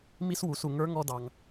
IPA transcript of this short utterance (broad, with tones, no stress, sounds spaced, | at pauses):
m i˥ s w u˩˧ s u˩ ŋ ə˞˧˥ ŋ ɔ˧ d ɑ˩ ŋ